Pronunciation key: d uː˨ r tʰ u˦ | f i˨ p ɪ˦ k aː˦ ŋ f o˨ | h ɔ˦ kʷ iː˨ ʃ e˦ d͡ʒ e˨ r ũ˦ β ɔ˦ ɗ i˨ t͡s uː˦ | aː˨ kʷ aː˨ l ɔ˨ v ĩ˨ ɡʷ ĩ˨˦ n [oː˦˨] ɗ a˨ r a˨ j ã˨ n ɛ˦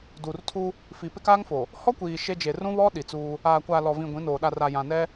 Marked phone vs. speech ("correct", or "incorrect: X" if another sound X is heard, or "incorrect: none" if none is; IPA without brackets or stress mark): incorrect: oː˨